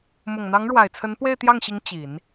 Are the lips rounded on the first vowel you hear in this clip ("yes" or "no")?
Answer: yes